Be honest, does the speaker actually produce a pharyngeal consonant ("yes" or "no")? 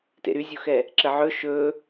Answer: yes